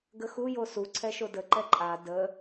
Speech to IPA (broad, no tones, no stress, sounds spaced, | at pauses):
ɡ ə x u j o s u ǀʰ ɛ ʃ o d ə ǃ ɛ ǃʼ a d ə